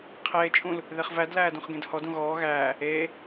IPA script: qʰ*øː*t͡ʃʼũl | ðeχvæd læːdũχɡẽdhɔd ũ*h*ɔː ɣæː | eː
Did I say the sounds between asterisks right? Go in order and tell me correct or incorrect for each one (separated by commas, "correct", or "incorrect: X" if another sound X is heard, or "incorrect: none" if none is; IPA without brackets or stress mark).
incorrect: eː, incorrect: ɣ